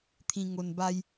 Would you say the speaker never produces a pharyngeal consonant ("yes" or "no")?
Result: yes